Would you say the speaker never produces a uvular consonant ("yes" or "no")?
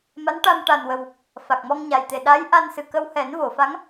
yes